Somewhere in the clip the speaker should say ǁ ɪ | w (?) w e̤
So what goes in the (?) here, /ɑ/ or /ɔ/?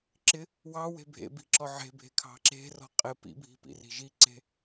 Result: ɑ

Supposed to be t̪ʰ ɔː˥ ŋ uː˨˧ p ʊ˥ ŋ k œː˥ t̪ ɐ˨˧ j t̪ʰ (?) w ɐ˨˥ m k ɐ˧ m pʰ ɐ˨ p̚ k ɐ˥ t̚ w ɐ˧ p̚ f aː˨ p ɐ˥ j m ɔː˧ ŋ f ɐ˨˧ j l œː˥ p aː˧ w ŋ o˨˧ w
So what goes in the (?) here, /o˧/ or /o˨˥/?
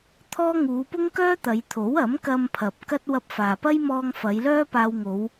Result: o˨˥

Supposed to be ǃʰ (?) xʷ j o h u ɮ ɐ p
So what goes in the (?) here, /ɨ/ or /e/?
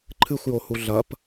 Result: ɨ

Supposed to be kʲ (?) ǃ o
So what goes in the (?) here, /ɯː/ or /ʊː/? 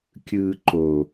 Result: ɯː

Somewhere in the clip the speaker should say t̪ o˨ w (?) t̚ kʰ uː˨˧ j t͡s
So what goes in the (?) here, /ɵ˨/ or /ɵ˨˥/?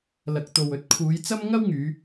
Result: ɵ˨˥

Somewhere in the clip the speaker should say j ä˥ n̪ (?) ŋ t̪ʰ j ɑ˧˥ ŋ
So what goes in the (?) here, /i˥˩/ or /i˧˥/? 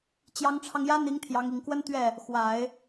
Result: i˧˥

